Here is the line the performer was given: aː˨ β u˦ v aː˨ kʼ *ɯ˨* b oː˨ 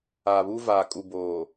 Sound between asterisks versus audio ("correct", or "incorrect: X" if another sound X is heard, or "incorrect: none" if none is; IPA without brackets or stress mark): incorrect: u˨